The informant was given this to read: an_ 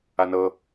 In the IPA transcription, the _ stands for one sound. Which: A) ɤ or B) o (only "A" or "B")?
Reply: A